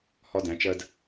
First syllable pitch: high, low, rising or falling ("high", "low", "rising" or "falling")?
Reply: high